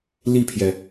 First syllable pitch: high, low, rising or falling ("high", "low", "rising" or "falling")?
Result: falling